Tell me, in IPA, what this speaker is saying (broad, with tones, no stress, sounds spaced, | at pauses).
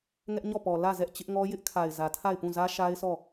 ŋ ɛ˦ ʔ ɲ ɔ˦˨ p ɔ˨ l ä˦˨ z ɛ˦ ʔ t͡ɕ ɪ˦ ʔ ŋ ɔ˦ j ɪ˦ ʔ kʰ a˨ ɪ̯ z ä˨ tʰ a˦˨ ɪ̯ p ũ˦˨ z ä˦ ʃ a˦ ɪ̯ s ɔ˦˨